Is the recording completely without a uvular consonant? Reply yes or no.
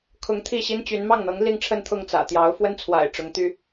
yes